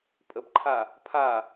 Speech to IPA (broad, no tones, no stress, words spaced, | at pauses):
pʼəbǃʰa | pʰa